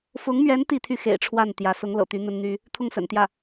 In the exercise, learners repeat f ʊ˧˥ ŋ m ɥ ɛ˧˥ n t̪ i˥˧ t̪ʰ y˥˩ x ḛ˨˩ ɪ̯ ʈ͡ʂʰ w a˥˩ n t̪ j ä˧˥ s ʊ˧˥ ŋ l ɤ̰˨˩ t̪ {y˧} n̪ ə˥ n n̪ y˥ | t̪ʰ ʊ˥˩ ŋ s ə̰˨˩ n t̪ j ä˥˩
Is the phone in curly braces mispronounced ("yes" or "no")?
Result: yes